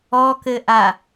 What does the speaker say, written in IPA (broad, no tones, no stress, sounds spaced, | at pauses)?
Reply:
ɔ k ɘ ʔ a